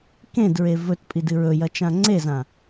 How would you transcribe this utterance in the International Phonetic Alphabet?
k ẽ d ɹ e v ɵ t pʼ i d ɨ ɹ ɵ j ɐ t͡ʃ ã ŋ͡ǀ e z ã

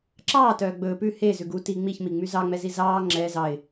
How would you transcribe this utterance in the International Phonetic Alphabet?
ǁ ɑː t œː ɡ͡b ɵː p ʉ h e z ʉ ɡ u t i ŋ͡m i ç m i ŋ͡m y z ɑ ŋ͡m ɛ z i z ɑː ŋ͡ǁ ɛ z ɑ ɪ̯

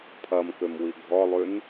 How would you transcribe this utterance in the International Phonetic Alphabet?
pʰ ɐ m k ø m w i ɡʱ ɔ lˠ y n

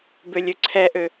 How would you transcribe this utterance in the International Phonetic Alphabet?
b ø lʲ ø ǀʰ ɛ ʔ ø

